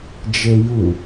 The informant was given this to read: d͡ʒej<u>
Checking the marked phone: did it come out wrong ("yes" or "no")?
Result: no